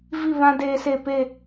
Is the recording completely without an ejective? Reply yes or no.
yes